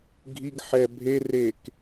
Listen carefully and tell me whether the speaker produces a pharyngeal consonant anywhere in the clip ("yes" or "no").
yes